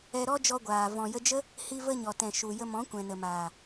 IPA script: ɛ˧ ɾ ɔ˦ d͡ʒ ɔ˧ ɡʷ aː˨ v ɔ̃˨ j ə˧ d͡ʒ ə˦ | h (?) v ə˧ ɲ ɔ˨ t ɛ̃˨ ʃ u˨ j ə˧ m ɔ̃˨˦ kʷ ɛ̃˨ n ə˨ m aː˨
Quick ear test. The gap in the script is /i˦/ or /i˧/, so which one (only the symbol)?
i˧